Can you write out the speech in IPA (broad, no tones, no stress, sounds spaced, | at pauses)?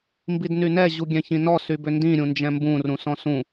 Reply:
m b i d n y n ɛ ʑ u ɡʲ ɛ̃ ç ĩ n ɔ s y b ʏ n d ĩ ɾʲ ũ n d͡ʒ ɛ̃ m b ũ r ũ s ɔ̃ s ũ